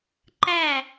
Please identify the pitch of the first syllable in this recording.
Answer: falling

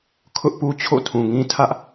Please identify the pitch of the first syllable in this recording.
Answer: high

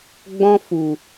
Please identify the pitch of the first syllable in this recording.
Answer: high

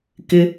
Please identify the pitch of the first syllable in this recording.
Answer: low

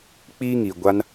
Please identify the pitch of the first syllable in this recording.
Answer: high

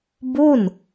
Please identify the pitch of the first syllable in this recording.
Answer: falling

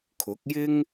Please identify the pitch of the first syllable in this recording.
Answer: rising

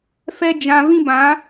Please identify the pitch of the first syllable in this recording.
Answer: high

